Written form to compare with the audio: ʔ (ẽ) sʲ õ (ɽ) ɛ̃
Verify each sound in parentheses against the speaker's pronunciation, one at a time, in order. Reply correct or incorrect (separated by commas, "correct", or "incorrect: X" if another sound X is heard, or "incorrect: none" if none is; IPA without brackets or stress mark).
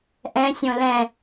incorrect: ɛ̃, incorrect: l